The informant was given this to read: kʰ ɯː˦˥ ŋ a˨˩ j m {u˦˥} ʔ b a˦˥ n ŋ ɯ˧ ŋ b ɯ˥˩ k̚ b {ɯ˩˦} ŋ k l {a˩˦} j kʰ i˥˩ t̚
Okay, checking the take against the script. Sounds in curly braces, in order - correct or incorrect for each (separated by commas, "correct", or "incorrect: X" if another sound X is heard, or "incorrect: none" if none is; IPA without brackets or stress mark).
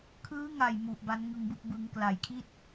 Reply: incorrect: u˨˩, correct, correct